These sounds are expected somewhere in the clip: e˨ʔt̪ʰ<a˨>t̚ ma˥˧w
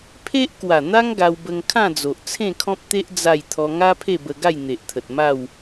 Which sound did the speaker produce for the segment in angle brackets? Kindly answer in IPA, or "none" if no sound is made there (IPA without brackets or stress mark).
ə˨